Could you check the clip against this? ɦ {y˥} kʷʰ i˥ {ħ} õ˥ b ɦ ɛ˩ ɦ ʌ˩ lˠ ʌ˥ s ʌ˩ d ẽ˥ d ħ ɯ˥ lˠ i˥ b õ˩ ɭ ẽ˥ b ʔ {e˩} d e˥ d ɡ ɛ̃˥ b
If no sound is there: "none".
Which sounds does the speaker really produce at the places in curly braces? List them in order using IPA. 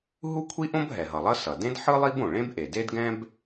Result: u˥, ʔ, e˩

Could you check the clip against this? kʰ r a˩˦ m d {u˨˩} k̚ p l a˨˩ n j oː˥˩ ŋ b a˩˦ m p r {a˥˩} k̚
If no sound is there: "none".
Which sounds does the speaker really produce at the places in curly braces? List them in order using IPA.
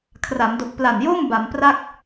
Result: o˨˩, a˥˩

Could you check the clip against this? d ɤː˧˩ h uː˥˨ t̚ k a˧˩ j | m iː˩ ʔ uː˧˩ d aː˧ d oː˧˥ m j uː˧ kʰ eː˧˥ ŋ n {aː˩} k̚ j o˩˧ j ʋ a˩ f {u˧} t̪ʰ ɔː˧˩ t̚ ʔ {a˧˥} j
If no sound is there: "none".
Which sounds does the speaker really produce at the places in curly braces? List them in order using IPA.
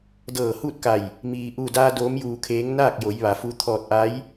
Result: aː˥˨, u˧, a˧˥

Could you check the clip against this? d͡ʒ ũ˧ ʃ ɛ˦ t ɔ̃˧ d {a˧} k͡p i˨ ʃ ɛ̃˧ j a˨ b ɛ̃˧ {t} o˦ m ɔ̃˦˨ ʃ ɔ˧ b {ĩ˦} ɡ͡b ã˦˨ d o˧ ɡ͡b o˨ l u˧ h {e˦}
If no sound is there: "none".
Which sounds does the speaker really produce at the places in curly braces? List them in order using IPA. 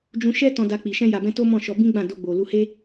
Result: a˧, t, ĩ˦, e˦

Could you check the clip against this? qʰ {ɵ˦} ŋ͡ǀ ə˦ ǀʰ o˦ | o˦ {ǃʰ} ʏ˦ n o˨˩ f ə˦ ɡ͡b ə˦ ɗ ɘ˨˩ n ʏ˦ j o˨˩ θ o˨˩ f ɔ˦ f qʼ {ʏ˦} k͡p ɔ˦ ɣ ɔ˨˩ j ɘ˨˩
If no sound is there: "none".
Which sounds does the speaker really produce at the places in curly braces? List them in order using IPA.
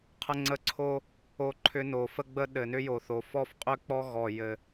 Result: ə˦, ǃʰ, ʏ˦

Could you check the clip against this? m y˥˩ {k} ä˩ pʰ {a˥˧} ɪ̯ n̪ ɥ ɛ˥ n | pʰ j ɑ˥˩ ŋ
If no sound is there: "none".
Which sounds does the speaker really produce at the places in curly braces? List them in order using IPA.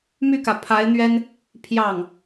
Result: k, a˧˥

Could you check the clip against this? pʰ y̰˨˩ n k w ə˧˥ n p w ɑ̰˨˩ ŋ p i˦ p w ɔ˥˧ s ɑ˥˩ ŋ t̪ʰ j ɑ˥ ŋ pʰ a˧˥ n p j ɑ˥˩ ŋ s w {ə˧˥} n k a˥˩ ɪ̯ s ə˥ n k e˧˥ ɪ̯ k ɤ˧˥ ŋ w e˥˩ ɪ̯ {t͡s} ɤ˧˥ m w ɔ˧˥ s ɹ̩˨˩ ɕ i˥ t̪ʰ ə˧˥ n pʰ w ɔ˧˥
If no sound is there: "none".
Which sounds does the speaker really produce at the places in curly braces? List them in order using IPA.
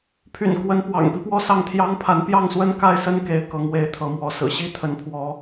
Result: ə˥, t̪ʰ

